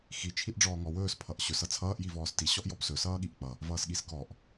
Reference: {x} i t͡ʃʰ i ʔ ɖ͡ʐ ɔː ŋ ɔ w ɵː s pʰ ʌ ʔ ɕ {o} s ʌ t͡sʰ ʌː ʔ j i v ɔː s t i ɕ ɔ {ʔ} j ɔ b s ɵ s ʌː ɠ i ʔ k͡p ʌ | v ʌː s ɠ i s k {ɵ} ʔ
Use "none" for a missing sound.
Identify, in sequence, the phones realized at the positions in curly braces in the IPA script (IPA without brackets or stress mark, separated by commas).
x, ɵ, ʔ, ɔ